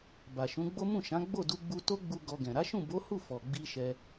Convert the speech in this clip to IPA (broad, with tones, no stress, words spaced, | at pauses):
ba˨ʃũ˨˦ɡ͡bo˦ mũ˦˨ʃã˨˦ ɡ͡bo˦˨du˧ɡ͡bu˧ to˦ɡ͡bu˧ ɡɔ˧ɡɛ̃˨ ɾa˨˦ʃũ˦˨bo˨˦hu˦˨ fɔ˨ɡ͡bi˧ ʃɛ˧